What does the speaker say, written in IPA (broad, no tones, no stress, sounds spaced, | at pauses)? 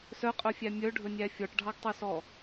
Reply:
s œ qʼ œ fʲ æ mʲ œ ɖʱ ɵ nʲ æ fʲ ɔ ʈ ɖʱ ɑ ɡ tˤ œ s ɔ